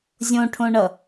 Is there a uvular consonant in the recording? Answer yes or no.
no